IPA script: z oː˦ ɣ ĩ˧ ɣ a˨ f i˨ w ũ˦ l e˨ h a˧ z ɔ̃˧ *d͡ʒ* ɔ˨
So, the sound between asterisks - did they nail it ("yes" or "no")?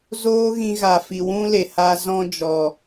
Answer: yes